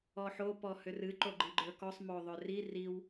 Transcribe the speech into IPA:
ɔ ħ o p ɔ h ʏ r ɨ ǃ o ɡ͡ǃ i ɡ͡ǃ ə˞ k ɔ sˤ m o ðˤ ʏ r i r i w

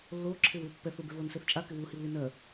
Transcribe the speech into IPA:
lː oː ǁʰ ɪː w ɪː pː ɛ θ u b e v o n s e θ t͡ʃʼ a k ɪ w u h i w l i n ɜ

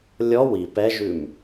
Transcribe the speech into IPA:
lʲ ɔ w i p ɛ ʒ ʉ m

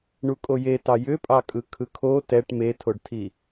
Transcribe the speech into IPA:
ɳ u kʼ o j e t ɑ j ʏ pʼ ɑ kʼ ɯ kʰ ɯ kʰ o t ɛ ʈ m e tʰ o ɖ tʰ i

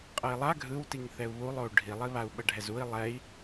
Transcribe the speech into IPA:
qʼ ɤ i̯ lˠ a ɡʱ ɯ w t i ŋ θ ɛ u̯ β u lˠ o u̯ ɖʱ i lˠ i β a u̯ ɓ ɤ ɖʱ ɛ z u i̯ lˠ ɛ i̯

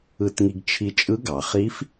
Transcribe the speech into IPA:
ɯ˧ t ŋ i˧ ɡ t͡ʃʰ i˧ t͡ʃʼ ɯ˧˥ ɡ ɑ˩ χ i˧˥ f

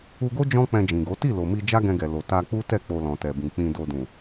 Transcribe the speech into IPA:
u˧ ɡ o˦ d͡ʒ ɔ̃˦ k͡p ɛ̃˧ d͡ʒ ĩ˨ ɡ o˨˦ t i˦˨ l o˨ m i˧ d͡ʒ a˦ ɡ ɛ̃˧ ɡ ɛ˨ l o˨ t a˧ k͡p u˦ t ɛ˦˨ k͡p o˧ l ɔ̃˨ t ɛ˨ b ĩ˨ k͡p ĩ˧ d o˧ d ũ˨

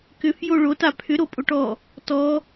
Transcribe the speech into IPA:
k ʏ f j o ɭ o t a pʰ ʏ ɾ o pʼ o ʈ ɔ | t ɔ

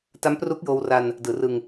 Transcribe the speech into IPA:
t a˦˥ m p r u˦˥ k̚ j oː˧ w r a˧ n | d ɯː˩˦ r ɯ˧ ŋ

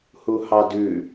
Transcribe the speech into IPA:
h u h ɑ d ʉ

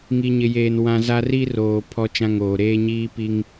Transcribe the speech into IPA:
ŋ i˨ ɲ ɪ˨ j eː˨ n w ã˦ z a˦ r i˦ r oː˨ pʰ ɔ˦ t͡ʃ ã˦ ŋ oː˨ ɾ eː˦ ɲ iː˦ p i˦ ŋ

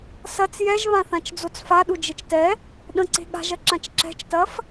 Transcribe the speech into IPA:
s ɐ t͡s j ɛ ʒ β ã θ ã t͡ʃ d͡z o t͡s f a ɗ u d͡ʒ e t͡ʃ t ɛ | ɗ ə̃ ǀ e̤ ɠ a̤ ʒ ɐ ǁ ã t͡ʃ ǁ ɛ̤ t͡ʃ t ɐ f

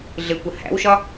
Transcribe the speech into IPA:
ɮ ɪ kʷ ə h æ̰ w ʃ ɒ

